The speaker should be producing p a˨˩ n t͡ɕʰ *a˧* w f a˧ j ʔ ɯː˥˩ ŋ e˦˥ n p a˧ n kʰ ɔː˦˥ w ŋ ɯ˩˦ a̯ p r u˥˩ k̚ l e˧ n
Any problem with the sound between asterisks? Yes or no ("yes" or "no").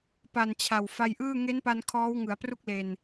yes